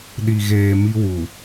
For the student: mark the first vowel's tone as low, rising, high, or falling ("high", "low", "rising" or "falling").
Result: low